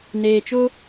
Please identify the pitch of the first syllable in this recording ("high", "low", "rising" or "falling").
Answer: low